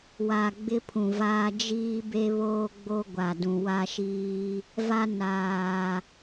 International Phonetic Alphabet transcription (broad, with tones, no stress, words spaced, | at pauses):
wa˨ ɡ͡bɪ˦pʰũ˨vaː˦ d͡ʒiː˦be˦βoː˦ɡ͡bo˦ ɡʷa˨dũ˨wa˦ʃiː˦ | va˦ naː˨